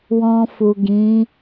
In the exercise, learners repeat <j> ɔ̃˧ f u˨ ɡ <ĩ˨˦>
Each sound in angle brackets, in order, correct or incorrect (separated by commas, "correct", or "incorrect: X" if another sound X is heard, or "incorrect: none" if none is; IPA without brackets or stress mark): incorrect: w, correct